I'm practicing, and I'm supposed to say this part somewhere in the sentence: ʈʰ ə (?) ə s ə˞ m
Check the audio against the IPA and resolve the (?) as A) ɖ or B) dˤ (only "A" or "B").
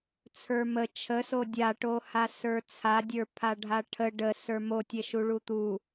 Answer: A